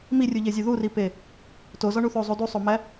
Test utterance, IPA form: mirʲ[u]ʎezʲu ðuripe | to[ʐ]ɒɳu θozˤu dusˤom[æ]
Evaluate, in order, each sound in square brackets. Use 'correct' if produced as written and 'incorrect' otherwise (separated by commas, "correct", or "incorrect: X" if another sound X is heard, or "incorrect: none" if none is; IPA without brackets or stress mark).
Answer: correct, incorrect: z, correct